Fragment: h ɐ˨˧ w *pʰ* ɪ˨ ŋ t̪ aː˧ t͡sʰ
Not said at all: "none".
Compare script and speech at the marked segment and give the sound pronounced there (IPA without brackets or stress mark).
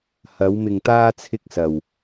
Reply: m